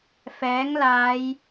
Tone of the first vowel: rising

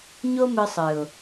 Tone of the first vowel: high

